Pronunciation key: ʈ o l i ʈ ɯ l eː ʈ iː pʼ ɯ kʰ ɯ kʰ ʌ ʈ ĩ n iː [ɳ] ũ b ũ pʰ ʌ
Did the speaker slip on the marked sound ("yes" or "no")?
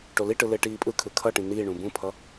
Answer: no